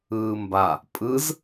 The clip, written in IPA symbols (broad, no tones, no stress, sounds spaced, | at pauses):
ɯː m b a | pʼ ɯ z